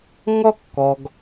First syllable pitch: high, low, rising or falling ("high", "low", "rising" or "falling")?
high